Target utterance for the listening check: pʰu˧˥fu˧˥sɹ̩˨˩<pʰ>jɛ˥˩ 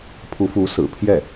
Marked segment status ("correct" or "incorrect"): correct